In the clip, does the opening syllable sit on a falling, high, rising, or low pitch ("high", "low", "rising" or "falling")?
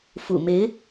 low